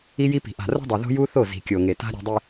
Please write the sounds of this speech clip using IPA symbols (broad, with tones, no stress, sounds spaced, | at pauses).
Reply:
i˦ j i˦ p i̤˨ ʔ a̤˨ r o̤˦ dˤ e˨ ð o̤˦ j u˦ θ o˦˨ z i̤˨ kʲ o˨ ŋ e˨ t a̤˦ ɾʲ e̤˨ dˤ i˨